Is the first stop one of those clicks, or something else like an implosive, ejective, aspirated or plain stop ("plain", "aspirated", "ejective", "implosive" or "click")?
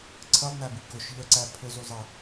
click